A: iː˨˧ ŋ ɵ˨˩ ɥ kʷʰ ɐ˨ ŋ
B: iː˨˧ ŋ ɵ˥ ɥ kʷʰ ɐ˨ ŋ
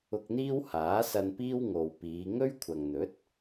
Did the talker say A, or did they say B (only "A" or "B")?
B